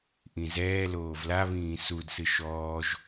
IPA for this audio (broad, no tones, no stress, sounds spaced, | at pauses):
ʔ ĩ z ɛː l oː v l a β ĩː s u d s ɨ ʃ ɔː ʒ